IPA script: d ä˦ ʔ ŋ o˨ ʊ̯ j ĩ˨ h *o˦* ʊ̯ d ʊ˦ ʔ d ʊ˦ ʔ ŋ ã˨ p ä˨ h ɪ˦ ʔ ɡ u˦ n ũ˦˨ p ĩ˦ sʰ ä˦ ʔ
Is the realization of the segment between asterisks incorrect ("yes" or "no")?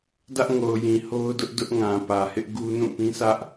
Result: no